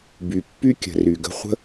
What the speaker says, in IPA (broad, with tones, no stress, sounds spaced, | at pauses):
b y˨ pː y˦ kʲ ə̤˨ r y˨ ɡ ə̤˧ χʷ ə̤˦